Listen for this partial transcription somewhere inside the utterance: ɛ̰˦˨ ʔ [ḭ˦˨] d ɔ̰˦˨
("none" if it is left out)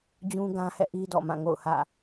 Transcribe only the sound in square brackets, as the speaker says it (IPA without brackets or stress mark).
i˦